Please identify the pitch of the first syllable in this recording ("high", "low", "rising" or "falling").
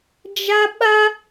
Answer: high